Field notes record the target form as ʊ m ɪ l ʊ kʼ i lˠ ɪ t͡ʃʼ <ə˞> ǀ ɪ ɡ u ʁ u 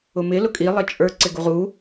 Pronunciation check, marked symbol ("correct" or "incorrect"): correct